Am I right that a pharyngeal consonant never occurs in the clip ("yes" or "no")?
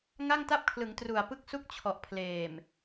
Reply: yes